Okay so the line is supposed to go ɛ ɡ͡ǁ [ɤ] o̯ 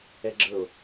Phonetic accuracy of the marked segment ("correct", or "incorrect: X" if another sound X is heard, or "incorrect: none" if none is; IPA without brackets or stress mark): correct